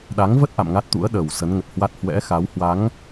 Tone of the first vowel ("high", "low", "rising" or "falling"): rising